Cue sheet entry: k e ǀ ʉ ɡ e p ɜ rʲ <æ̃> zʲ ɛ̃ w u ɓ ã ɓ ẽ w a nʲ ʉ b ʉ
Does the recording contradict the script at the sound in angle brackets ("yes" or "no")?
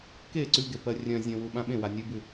yes